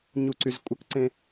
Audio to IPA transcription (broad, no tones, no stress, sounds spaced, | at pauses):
ɲ u ǀ y z kʷʼ ə k ǀ ẽ